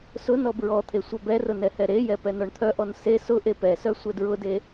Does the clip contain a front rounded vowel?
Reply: yes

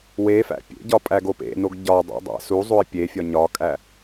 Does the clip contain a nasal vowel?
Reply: no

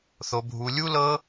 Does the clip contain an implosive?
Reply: no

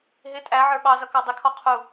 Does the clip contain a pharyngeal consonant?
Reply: yes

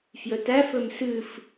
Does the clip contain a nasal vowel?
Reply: no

